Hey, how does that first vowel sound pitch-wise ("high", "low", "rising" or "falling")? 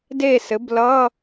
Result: falling